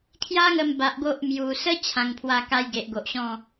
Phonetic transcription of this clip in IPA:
kʰ j a˦ ŋ ə˧ m b a˨ ʔ ɡ o˦ ʔ m j u˨˩ s ə˦ t͡ɕʰ ã˨˩ ŋ pʰ w a˧ k a˧ j ɡ e˨ ʔ ɡ o˨ ʔ ɕ ɔ̃˥˧

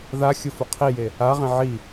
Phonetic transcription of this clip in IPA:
ð a xʲ ʊ f ʊ qʰ i j e | a ʁ ẽ ʕ i

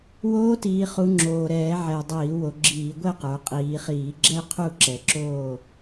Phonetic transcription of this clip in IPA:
w oː˧˥ t iː˩˧ χ u˩˧ ŋ͡ǁ oː˨˩ ɾ ɛː˧˩˧ ʕ ɛ˨˩ dˤ iː˧˩˧ w o˩˧ ɡ͡ǁ iː˧˩˧ ɡʷ ɛ˥˨ q ə˞˩˧ qʼ iː˩˧ χ iː˧˩˧ ɡ͡ǁ ɛ˥˨ qʰ u˥˨ ǁ ɛ˨˩ ǁ oː˥˨

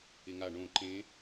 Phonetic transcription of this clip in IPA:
ɪ ŋ a ɳ õ ǃ ẽ

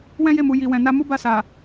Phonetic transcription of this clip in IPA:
w ɛ̃˦ j e˦˨ m u˨ j i˨ w ɛ̃˨ n a˧ m u˦ b a˦˨ s a˨

